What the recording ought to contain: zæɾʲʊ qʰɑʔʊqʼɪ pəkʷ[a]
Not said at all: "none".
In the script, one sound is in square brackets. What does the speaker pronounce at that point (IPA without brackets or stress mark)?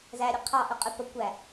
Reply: æ